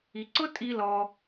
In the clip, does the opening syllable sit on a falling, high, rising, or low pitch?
low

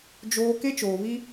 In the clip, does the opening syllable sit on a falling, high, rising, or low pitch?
high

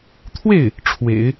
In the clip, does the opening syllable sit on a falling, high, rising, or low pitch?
falling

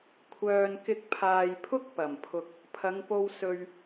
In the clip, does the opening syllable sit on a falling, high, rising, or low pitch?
low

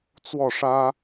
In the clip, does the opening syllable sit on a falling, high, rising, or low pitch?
falling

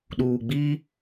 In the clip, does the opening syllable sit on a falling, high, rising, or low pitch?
low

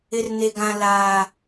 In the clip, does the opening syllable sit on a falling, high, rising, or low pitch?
low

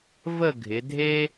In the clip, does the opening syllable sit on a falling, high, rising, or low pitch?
falling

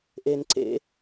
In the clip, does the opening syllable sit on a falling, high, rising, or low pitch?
high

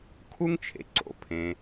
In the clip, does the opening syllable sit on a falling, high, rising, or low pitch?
high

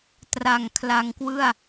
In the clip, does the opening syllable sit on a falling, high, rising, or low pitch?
low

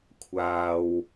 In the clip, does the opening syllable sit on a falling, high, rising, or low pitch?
low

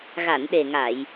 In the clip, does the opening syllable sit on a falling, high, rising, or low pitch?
low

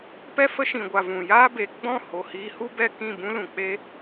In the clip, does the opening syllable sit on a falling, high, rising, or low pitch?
high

